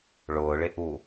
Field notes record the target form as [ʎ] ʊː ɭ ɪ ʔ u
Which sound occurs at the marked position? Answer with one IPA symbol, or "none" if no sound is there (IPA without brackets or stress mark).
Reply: ɭ